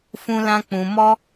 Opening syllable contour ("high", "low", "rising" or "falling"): high